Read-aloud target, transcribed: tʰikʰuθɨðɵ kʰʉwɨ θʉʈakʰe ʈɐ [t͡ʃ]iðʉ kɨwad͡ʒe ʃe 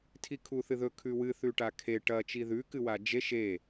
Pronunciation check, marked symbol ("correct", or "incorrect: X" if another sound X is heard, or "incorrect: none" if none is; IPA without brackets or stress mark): correct